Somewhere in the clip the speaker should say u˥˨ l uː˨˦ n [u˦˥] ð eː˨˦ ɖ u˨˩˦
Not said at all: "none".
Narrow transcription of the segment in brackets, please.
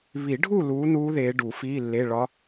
uː˦˥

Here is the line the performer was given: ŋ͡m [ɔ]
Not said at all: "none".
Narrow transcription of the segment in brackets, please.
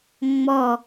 ɔ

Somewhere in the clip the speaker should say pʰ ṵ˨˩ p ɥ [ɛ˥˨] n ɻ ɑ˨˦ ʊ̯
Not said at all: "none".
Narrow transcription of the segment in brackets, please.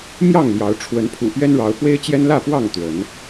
ɛ˦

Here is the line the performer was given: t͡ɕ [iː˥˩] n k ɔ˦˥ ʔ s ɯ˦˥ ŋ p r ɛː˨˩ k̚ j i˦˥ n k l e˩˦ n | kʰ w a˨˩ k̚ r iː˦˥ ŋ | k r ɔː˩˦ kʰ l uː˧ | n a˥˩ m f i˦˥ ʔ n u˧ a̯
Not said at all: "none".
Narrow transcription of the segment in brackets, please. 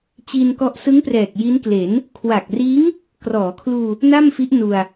iː˧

